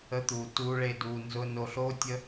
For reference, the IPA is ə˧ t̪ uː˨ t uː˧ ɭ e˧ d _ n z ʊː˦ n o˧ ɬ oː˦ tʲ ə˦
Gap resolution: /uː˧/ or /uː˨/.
uː˧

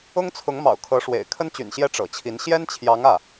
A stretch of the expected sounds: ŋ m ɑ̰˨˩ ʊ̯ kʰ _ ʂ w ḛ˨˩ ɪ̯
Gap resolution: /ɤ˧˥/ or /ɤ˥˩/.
ɤ˧˥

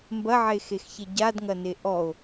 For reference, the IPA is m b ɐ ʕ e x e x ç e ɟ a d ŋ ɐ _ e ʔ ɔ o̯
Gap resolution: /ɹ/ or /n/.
n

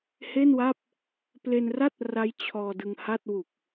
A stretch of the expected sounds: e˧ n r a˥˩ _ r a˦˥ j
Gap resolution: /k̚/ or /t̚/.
t̚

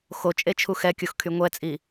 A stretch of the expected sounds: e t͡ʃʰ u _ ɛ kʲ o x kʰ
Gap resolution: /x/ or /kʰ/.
x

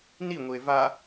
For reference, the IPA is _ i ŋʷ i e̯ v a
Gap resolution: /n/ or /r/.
n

